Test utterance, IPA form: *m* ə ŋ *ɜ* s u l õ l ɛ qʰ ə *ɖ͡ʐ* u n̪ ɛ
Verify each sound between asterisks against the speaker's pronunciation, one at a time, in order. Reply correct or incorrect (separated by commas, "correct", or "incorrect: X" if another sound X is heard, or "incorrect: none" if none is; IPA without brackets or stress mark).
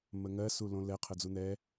correct, correct, incorrect: d͡z